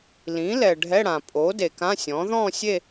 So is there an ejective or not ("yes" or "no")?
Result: yes